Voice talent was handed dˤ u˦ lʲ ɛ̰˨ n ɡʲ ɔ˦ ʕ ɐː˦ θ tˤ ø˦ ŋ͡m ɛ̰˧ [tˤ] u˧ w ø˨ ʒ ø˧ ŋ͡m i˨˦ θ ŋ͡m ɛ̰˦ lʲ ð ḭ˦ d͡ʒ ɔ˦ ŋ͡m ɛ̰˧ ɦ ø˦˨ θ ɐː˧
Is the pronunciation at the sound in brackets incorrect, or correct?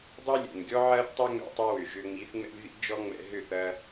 correct